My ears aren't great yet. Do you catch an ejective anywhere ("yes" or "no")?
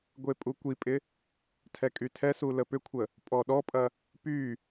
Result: yes